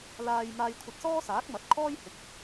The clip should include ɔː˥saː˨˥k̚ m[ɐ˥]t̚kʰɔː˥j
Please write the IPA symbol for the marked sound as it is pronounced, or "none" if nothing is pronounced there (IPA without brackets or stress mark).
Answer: ɐ˨˥